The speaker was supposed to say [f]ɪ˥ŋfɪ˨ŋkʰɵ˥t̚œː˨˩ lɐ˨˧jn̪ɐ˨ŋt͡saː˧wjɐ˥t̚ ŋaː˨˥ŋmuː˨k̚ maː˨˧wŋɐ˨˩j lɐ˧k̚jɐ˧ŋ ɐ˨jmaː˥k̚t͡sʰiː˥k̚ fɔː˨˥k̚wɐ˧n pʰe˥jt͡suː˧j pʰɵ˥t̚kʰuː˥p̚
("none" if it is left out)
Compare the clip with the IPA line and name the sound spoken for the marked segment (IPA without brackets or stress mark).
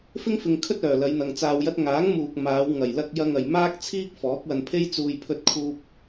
f